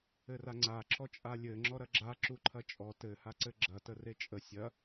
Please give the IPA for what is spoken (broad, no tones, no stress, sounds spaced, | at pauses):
ɘ r a ŋ͡ǀ a ǁ ɔ t͡ʃʼ a lʲ ɘ ŋ͡ǁ ɔ ɾ ɐ ɡ͡ǁ a ǁ u ǃʰ ɐ t͡ʃʼ ɔ t ɘ h a ǀ ɘ ɡ͡ǁ ɐ t ə r e t͡ʃʼ ə sʲ ɐ